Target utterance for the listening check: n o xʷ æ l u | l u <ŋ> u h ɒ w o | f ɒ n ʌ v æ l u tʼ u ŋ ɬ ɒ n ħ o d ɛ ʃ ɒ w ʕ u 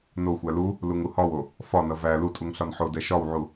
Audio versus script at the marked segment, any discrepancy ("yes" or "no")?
no